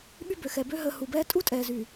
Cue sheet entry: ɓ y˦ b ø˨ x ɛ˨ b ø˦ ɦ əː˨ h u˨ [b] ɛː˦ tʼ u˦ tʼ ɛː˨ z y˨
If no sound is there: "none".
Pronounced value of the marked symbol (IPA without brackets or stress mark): b